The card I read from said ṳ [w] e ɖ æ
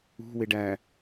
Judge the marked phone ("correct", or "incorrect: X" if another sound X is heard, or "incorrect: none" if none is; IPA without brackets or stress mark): correct